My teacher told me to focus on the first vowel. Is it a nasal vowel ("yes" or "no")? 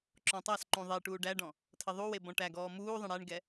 yes